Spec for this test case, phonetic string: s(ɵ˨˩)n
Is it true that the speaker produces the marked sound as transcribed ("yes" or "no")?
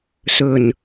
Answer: yes